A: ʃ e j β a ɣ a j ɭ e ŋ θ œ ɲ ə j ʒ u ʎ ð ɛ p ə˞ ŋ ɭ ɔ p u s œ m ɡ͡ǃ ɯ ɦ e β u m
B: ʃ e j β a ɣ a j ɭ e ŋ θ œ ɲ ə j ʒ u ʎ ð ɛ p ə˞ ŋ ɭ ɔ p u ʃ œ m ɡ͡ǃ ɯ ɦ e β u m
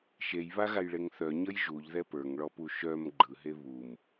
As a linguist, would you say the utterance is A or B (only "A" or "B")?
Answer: B